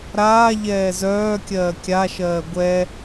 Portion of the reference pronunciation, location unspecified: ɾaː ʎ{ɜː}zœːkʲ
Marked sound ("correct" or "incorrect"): incorrect